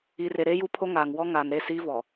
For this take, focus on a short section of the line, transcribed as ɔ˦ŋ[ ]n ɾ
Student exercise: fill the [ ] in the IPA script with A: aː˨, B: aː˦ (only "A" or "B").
A